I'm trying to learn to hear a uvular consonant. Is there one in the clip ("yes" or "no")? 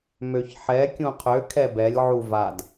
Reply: yes